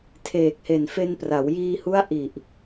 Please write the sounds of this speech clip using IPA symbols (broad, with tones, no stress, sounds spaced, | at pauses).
tʰ eː˨˩ k̚ h e˨˩ n f e˧ n p r a˩˦ w j iː˧ h u˦˥ a̯ ʔ i˨˩ ʔ